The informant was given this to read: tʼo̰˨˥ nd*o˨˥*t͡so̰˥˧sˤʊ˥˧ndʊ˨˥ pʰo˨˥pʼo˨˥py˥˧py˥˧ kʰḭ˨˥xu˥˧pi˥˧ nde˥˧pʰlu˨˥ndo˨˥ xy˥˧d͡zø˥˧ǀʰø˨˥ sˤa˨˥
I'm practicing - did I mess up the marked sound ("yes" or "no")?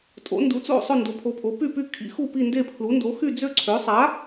yes